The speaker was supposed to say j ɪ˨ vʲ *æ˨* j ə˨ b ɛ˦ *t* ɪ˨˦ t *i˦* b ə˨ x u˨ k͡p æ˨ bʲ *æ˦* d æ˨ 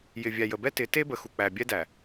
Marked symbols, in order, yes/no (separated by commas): yes, yes, no, no